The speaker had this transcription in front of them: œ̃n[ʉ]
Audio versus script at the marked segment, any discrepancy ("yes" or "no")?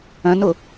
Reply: yes